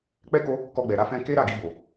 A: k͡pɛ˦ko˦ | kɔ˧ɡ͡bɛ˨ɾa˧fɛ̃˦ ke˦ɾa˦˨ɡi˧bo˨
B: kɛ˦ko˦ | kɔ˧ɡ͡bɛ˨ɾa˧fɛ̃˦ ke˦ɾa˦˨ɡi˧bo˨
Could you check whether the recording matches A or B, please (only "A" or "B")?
A